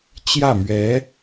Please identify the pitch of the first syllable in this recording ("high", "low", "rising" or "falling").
falling